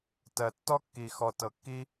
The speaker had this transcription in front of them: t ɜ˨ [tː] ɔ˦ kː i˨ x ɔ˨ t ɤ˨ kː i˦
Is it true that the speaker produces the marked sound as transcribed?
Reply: yes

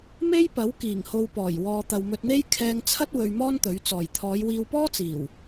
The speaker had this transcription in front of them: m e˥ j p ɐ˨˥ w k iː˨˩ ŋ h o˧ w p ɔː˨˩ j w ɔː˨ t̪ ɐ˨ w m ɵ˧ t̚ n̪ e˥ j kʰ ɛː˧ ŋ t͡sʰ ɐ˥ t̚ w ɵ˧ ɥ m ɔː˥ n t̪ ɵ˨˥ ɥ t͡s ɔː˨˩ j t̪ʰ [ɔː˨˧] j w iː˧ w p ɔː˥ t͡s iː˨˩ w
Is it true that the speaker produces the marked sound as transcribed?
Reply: yes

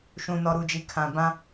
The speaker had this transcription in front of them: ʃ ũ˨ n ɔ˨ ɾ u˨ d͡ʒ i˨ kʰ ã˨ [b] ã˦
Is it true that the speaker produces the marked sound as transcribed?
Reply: yes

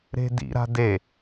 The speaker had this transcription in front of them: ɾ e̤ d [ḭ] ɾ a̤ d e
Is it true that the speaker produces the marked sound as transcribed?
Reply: yes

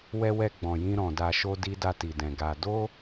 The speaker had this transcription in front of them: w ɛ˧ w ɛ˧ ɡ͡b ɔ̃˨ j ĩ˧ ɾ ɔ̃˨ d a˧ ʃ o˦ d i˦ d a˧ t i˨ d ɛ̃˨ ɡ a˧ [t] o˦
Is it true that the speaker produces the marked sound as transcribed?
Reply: no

